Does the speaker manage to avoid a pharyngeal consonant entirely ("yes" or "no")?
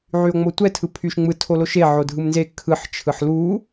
no